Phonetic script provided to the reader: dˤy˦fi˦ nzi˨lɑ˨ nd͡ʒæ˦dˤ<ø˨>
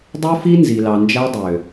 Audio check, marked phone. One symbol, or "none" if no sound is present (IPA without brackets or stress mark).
ø˨